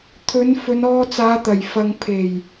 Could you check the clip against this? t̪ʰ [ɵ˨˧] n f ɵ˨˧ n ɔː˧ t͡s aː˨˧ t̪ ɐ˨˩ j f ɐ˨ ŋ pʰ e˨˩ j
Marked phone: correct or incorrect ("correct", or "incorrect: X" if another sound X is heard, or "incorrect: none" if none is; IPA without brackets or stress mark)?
correct